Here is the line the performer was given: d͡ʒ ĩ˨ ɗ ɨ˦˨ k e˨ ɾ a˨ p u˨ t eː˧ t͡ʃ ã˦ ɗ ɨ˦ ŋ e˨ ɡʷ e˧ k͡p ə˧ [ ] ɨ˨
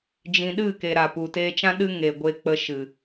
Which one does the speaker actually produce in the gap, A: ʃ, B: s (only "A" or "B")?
A